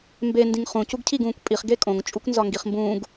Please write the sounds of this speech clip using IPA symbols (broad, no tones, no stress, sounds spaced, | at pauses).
m b e n d ĩ ŋ χ ũ c u ɡ cʰ i ɡ ũː kʷ pʼ i χ ɡ e kʼ õ ŋ t͡ʃʼ u kʷ n z ɒ ŋ ɡ i χ m b ũː ɡ